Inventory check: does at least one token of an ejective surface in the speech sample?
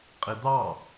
yes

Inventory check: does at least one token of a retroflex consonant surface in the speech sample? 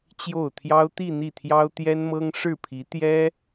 yes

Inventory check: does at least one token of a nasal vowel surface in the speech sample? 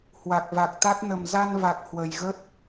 no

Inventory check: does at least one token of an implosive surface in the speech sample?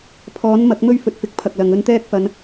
no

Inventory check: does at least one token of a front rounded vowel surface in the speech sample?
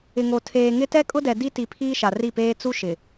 no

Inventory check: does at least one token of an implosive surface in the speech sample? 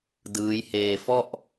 no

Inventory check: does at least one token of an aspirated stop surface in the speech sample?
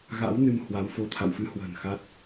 yes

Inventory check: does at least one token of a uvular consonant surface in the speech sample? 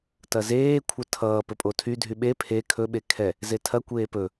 no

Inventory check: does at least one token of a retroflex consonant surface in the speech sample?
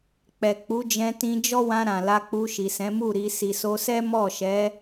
no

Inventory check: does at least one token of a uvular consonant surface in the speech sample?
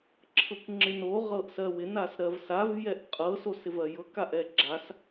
yes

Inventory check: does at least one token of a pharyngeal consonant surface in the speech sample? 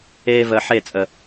yes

